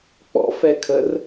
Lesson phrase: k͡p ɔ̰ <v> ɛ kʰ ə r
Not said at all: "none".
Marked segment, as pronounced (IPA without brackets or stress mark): f